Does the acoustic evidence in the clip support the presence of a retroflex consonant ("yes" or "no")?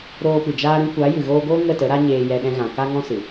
no